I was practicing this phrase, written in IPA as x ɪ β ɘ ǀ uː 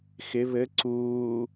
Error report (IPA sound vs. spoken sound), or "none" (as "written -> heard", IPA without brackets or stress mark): none